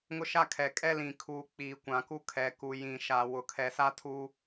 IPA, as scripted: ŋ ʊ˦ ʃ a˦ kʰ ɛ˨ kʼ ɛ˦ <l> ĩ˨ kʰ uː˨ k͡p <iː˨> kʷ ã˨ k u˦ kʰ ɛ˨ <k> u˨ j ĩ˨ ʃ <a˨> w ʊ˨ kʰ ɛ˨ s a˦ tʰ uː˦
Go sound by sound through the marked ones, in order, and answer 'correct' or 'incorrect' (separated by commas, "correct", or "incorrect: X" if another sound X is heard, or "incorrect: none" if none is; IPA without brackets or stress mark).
correct, correct, correct, correct